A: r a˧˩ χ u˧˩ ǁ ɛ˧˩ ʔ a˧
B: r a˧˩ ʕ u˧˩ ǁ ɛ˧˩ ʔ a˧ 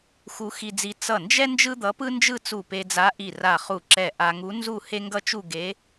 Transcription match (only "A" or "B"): A